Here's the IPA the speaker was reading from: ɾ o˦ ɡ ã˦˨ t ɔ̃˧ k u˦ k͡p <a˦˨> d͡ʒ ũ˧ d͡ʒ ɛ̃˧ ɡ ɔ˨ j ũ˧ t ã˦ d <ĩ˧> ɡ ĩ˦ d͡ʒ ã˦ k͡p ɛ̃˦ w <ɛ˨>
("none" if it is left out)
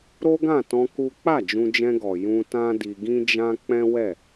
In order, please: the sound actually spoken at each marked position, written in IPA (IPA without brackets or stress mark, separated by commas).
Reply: a˦˨, i˧, ɛ˦˨